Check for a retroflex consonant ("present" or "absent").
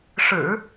present